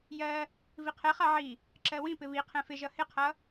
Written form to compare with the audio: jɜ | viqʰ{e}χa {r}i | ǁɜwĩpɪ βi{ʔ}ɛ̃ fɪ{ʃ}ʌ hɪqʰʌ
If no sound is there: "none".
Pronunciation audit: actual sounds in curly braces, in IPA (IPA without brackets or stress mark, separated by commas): ɛ, ʕ, qʰ, ʒ